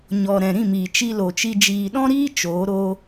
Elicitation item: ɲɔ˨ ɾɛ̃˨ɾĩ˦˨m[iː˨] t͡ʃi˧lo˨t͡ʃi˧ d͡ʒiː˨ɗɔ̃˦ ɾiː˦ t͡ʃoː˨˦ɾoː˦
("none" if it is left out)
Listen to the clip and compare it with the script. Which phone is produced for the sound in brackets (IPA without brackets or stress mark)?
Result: iː˨